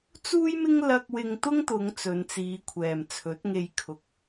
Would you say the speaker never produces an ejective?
yes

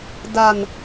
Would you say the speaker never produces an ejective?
yes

